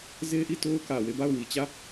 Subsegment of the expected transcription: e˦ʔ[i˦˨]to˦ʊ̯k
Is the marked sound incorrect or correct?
correct